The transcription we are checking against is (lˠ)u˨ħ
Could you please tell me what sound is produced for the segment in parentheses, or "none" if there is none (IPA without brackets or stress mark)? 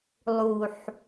lˠ